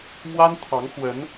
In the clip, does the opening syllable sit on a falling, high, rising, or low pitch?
high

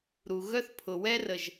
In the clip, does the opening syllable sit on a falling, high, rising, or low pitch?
low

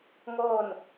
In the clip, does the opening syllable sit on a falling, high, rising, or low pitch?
falling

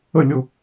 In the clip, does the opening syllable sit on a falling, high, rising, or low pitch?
falling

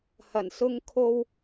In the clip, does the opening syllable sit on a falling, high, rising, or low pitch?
low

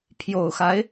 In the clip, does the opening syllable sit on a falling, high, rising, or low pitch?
low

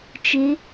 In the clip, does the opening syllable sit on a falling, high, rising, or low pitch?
rising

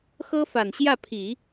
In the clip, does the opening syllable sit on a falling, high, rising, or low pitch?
high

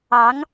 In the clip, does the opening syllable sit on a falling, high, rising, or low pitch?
rising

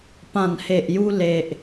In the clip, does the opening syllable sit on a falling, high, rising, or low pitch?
low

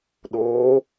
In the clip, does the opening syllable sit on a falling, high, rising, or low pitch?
rising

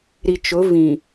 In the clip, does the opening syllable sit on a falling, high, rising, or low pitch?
low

